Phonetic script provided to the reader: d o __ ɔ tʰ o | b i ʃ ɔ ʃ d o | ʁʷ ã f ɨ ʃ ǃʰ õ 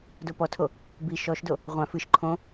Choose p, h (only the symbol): p